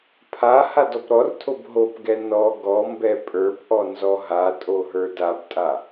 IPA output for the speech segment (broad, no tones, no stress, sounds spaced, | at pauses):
pʰ a h a d ɔ p ɾ ɔ r tʰ o b ɦ o p ɡ ɛ n ɔ ɡ ɔ m b ɛ pʼ ə˞ p ʔ ɔ n z ɔ ɦ a tʼ o ɦ ə˞ d a b tʼ a